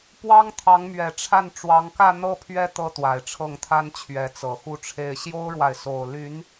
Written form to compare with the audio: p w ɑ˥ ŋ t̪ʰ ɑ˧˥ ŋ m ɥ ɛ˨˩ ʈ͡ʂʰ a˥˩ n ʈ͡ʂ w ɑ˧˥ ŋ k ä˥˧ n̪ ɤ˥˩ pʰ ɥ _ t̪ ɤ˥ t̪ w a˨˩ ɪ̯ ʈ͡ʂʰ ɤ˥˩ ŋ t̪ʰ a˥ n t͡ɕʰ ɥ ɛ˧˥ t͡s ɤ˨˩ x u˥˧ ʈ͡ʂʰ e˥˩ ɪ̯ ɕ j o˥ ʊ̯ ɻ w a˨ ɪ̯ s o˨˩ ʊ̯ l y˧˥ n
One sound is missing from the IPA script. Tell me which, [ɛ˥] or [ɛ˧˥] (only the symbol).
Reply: ɛ˥